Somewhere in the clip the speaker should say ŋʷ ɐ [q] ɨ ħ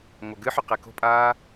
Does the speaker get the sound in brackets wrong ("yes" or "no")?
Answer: yes